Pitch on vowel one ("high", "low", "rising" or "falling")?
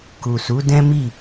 low